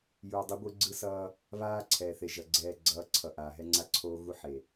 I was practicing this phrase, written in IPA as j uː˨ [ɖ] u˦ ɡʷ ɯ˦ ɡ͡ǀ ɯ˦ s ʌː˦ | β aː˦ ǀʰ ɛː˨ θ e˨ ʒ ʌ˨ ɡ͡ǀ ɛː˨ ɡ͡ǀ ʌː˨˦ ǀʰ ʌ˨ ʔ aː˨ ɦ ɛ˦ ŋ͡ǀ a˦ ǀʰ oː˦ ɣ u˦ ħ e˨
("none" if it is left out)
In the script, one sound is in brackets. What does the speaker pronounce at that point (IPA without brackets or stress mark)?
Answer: dˤ